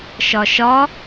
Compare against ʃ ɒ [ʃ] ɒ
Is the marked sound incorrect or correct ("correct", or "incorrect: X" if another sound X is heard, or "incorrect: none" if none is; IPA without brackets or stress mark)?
correct